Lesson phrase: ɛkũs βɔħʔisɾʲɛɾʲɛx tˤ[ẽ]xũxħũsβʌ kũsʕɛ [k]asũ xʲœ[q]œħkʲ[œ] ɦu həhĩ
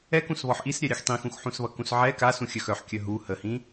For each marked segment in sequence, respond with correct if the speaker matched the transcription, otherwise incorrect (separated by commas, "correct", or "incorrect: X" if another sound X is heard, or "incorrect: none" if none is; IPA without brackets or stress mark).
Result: incorrect: ĩ, correct, incorrect: x, correct